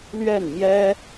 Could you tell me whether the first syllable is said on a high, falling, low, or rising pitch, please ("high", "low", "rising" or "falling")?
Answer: falling